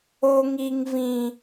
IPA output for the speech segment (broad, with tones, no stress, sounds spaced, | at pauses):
o˦ ŋ i˦ ŋ v ĩ˦